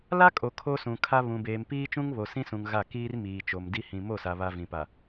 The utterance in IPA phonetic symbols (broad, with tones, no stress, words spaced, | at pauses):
la˦kʼo˨ kʰo˦sũ˨kʰa˦ βũ˨beː˨mpiː˦ t͡ʃũ˦ŋβo˨sĩ˦sũ˨ŋ ɣa˦˨ kiː˦rmiː˨t͡ʃo˨mdi˦ hĩ˨ mo˦˨sa˨ βa˨ vĩ˨pa˨